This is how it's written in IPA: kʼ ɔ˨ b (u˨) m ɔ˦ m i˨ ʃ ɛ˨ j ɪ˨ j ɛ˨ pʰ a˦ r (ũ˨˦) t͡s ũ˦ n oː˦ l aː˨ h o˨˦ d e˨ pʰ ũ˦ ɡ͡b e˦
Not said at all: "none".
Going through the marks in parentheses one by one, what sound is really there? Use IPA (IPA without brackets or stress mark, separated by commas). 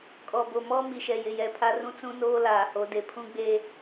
o˨, ũ˦